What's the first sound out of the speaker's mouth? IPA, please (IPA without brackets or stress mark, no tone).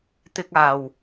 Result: t̪